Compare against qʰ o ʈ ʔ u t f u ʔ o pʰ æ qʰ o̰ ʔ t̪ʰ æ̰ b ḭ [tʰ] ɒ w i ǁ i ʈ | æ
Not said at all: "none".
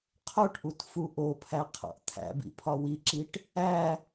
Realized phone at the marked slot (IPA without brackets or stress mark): pʰ